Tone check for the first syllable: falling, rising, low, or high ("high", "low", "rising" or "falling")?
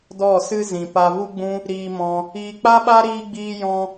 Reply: falling